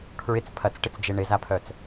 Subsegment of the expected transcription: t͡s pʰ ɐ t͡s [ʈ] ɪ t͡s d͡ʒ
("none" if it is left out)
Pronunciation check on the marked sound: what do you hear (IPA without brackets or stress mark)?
ʈ